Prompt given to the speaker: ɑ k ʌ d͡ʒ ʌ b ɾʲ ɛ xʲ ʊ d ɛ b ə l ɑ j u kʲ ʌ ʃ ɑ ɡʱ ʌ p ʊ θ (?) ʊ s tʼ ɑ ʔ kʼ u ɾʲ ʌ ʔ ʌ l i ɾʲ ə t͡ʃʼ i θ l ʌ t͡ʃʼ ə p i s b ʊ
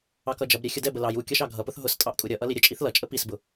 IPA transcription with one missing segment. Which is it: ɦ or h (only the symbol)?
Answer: ɦ